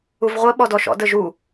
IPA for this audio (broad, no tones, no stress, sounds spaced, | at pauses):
u v ʁʷ ə ɓ ɔ d ɔ ʃ ɔ̰ d ə ʒ u